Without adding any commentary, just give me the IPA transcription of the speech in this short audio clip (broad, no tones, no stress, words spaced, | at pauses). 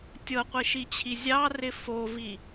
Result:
tʲɤqʷiʃit͡ɕʰi zʲɑrɪ fovi